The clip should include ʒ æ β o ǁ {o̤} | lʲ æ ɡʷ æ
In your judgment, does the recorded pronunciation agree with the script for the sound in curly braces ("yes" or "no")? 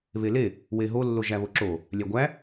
no